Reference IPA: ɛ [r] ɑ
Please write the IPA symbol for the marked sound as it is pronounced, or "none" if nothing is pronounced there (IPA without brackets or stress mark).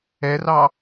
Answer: r